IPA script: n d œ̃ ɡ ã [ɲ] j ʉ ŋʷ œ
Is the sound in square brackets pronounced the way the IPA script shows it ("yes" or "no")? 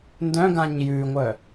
yes